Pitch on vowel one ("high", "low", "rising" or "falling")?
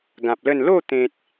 low